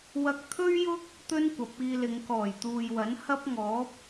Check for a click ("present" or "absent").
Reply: absent